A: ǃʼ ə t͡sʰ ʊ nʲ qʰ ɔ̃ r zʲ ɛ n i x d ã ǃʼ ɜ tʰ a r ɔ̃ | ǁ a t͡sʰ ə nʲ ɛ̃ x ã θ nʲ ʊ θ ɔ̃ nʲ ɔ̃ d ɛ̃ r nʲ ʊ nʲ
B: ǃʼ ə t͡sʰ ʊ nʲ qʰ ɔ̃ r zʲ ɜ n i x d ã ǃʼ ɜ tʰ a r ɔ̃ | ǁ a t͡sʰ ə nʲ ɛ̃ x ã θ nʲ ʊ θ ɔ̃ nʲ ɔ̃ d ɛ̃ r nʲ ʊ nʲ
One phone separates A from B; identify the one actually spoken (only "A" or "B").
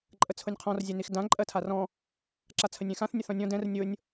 A